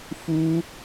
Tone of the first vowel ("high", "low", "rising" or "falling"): high